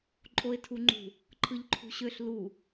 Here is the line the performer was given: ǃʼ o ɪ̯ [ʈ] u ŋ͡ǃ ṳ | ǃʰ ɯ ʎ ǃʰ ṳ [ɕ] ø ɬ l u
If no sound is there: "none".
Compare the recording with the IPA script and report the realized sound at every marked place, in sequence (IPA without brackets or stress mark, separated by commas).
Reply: tʰ, ɕ